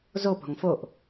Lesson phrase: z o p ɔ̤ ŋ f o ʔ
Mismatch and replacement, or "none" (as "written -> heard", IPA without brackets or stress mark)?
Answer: none